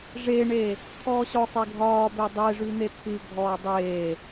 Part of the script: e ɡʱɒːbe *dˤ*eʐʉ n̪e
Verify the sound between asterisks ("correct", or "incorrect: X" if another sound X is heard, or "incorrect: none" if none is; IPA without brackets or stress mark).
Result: correct